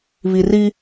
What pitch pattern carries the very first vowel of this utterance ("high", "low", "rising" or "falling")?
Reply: low